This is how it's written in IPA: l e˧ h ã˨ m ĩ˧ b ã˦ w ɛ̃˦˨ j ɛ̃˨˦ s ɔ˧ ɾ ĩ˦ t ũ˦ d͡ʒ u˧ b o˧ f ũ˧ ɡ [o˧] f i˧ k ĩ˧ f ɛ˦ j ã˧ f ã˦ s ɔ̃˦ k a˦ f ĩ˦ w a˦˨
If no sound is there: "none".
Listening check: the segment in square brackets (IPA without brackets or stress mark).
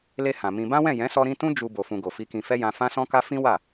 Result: o˨